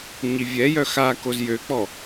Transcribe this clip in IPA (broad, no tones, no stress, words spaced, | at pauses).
ɲivʲɛjœ xa kozjøk͡pɔ